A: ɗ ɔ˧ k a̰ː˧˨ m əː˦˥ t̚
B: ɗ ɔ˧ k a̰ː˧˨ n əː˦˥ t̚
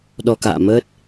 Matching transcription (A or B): A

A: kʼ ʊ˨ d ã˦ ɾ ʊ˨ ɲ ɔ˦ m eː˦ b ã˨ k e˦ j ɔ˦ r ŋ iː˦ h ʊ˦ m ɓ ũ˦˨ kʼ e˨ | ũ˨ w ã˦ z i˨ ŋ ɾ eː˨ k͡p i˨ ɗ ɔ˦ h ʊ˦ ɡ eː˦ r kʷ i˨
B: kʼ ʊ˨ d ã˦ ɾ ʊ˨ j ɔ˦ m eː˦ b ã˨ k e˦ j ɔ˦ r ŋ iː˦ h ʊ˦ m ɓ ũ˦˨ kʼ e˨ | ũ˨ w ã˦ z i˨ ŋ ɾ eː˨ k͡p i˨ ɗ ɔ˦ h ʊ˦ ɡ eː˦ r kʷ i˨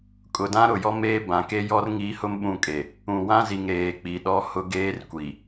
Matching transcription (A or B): B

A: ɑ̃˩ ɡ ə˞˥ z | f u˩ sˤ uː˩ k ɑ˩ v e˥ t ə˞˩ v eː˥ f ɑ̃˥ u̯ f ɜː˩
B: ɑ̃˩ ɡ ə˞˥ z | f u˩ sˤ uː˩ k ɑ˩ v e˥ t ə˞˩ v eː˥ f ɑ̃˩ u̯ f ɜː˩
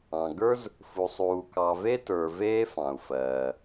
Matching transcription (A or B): B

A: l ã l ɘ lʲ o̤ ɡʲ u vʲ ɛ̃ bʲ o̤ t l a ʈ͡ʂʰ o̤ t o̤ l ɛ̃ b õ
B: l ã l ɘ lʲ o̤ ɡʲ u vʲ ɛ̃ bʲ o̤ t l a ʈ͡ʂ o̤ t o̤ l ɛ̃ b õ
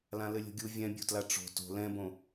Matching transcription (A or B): B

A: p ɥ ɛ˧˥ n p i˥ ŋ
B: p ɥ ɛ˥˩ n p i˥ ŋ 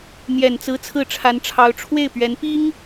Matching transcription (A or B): A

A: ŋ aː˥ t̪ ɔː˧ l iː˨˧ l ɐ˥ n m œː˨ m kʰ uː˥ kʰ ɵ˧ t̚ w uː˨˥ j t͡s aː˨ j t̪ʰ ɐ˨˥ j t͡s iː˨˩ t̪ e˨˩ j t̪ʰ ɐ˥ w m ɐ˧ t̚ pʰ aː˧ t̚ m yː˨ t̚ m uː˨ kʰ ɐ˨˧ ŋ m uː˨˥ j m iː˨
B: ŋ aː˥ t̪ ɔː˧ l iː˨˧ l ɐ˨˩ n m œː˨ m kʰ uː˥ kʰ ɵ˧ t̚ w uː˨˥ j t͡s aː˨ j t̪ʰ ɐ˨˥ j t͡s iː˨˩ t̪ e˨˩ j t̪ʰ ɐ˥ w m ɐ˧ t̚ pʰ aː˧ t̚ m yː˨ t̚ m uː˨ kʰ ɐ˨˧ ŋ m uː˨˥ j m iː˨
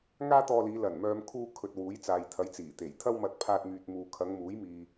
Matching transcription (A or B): B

